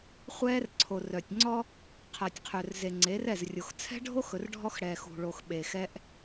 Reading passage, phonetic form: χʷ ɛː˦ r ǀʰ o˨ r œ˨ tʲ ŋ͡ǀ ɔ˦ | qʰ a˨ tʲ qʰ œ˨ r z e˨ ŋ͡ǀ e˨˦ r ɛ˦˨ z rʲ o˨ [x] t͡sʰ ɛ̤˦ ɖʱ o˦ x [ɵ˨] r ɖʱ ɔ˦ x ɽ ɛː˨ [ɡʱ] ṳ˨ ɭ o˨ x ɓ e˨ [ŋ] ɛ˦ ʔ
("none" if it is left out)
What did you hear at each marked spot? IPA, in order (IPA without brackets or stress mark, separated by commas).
x, ɵ˨, x, x